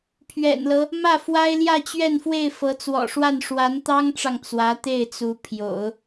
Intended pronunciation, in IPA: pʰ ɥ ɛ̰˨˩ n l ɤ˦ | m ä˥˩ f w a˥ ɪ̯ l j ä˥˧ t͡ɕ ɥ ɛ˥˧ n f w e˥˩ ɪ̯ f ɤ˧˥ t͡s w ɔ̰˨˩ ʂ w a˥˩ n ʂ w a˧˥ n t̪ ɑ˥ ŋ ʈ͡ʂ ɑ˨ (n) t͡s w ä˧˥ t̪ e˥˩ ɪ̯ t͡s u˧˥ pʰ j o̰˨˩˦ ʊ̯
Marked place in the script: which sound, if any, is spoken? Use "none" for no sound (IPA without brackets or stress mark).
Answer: ŋ